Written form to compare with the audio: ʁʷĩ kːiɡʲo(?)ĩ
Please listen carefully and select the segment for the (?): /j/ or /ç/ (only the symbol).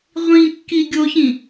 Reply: ç